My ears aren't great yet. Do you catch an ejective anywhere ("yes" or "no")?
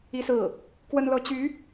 no